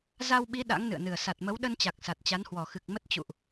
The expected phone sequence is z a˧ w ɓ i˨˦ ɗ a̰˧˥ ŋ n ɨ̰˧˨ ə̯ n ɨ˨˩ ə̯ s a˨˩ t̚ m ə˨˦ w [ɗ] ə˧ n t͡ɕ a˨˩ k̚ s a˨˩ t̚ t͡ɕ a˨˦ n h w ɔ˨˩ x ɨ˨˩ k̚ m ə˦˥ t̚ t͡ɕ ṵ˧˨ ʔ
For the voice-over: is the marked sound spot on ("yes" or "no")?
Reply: yes